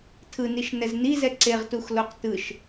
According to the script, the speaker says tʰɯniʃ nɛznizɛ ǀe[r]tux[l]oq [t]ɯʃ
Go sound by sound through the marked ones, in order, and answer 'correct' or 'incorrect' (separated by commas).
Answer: incorrect, correct, correct